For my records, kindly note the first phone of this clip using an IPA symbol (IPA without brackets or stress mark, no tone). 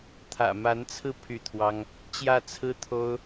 t̪ʰ